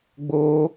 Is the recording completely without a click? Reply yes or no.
yes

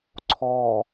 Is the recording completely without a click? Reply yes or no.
no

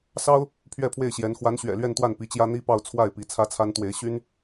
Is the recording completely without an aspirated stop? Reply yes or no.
no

